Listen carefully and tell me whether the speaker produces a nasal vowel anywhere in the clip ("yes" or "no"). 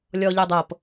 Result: no